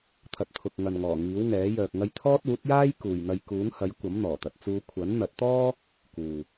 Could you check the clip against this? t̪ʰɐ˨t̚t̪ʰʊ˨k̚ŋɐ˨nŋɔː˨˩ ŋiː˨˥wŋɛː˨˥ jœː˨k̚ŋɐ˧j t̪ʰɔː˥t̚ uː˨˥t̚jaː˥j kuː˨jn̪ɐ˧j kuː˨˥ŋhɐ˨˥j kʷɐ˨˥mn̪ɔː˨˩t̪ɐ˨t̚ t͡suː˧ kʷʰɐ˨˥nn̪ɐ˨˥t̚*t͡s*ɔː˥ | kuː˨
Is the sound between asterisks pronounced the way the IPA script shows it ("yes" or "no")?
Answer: no